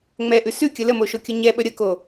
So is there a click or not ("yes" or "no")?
no